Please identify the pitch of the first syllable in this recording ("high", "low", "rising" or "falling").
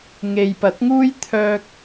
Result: low